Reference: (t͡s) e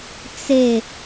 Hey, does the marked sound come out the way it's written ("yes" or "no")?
yes